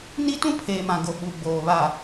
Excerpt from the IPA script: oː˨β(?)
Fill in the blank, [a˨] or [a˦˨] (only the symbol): a˨